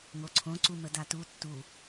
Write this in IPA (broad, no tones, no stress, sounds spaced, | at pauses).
ŋ o ǀʰ õ ǀ u m ə d a t u tː u